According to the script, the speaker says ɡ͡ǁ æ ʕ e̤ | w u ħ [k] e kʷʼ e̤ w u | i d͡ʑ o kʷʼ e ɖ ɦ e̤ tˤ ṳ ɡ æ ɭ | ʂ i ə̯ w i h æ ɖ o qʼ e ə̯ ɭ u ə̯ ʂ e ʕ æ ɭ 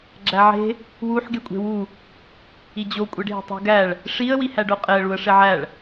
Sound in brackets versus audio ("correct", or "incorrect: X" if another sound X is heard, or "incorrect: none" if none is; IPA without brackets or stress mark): incorrect: ɡ